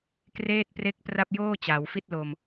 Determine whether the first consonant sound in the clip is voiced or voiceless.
voiceless